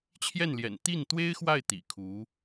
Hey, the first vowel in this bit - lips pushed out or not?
no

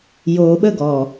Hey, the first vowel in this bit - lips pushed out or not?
yes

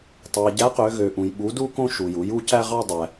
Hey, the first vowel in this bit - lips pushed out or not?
no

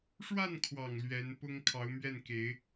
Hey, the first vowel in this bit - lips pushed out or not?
no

